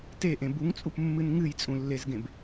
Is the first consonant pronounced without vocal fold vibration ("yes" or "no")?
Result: yes